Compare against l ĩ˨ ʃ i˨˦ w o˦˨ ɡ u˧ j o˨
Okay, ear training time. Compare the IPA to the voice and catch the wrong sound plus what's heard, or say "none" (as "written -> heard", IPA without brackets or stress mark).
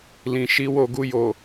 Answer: none